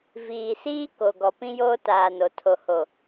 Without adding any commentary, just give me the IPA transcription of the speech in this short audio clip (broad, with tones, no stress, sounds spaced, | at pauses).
v iː˨ s iː˦ k o˨ ɡ ɔ˨ p ĩ˦ j oː˦ t aː˨ n o˨ tʰ o˨ h o˨